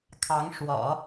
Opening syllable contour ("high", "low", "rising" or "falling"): rising